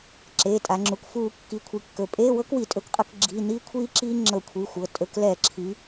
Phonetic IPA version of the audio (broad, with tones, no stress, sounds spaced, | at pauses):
ǁ e˩˧˩ tʼ a˩˧ ŋ͡ǁ u˩˧˩ k f uː˧˩˧ kː i˩˧ kʷʰ i˩˧˩ kː ɵ˩˧˩ pʼ eː˧˥˧ w ɤ˦˥ k w i˧˩˧ tʼ ɵ˧˩˧ k qʼ ɤ˧˩˧ k ɡ͡ǁ i˩˧˩ n iː˦˥ kʷʰ iː˦˥ ǁ iː˦˥ ŋ͡ǁ ɤ˧˩˧ kʷʰ i˩˧˩ xʷ ɤ˩˧˩ tʼ ɵ˩˧˩ k l ɛː˧˩˧ ǁʰ i˩˧